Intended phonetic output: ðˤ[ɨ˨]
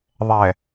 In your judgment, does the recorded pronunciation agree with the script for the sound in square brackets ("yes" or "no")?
no